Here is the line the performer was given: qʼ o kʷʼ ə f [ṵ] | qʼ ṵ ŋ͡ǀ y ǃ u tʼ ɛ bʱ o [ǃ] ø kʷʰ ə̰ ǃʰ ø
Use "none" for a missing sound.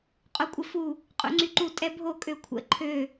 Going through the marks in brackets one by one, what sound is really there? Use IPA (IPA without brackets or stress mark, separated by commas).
u, kʼ